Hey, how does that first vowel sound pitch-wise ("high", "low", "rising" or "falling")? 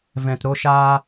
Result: low